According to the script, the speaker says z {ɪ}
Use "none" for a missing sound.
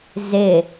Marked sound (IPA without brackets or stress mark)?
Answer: ɪ